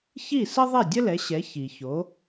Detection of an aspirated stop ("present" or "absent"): absent